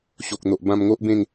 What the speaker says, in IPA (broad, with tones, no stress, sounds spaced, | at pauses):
ɕ o˨ k̚ n̪ o˨ ʔ b ã˧ m ŋ o˦ ʔ b ẽ˥˧ ŋ